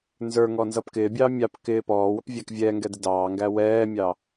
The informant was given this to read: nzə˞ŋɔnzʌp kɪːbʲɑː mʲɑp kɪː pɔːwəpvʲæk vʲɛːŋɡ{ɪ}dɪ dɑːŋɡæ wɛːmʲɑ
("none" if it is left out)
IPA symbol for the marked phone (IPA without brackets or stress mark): ɛ